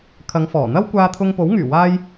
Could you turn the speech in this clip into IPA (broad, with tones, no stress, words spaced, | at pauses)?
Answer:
kʰɐ˨˧ŋfɔː˨˩ n̪ɐ˥wkʷaː˧t̪ʰʊ˧ŋpo˨˥w ŋyː˨˩waː˧j